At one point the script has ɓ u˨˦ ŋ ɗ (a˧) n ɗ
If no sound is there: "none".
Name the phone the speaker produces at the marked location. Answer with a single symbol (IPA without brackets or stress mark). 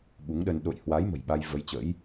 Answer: ə˧